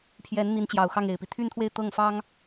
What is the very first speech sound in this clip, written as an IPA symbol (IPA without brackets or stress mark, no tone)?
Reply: pʰ